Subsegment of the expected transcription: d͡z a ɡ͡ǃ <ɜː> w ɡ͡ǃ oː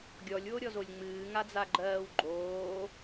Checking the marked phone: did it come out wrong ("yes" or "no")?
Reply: no